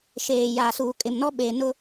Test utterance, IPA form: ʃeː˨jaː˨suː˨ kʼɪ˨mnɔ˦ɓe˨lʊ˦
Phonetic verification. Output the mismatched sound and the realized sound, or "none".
l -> n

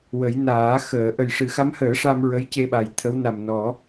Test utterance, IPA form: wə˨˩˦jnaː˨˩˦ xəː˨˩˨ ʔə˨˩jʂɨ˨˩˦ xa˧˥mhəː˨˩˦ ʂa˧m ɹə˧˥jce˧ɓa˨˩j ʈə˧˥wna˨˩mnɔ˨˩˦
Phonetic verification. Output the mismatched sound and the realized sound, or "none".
ʈ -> t̪ʰ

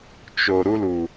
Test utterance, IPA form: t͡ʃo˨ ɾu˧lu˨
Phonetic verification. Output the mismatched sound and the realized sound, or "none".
none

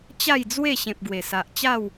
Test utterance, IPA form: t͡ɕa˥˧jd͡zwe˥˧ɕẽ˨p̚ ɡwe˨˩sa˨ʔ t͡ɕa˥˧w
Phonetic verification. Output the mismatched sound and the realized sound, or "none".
none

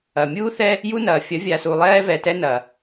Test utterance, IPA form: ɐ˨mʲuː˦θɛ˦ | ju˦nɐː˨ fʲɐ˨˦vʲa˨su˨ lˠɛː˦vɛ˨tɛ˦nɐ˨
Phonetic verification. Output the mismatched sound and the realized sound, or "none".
none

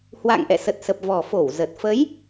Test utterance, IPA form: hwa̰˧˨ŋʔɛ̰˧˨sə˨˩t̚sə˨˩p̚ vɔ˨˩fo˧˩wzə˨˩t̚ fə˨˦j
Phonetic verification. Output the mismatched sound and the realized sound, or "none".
none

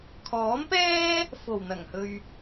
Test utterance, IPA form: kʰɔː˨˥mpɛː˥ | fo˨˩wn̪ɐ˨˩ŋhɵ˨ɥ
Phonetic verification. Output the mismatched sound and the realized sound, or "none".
none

